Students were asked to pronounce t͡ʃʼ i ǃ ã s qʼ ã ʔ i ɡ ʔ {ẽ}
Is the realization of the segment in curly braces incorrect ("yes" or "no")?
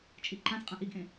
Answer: no